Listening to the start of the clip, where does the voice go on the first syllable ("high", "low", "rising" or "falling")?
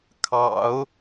low